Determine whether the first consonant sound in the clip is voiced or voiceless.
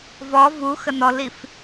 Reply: voiced